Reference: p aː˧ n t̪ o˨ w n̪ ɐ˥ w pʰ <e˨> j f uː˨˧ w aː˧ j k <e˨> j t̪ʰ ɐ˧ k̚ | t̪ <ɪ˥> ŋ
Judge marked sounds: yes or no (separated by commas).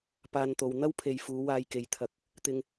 yes, yes, no